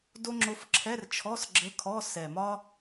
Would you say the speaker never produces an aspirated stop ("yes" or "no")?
no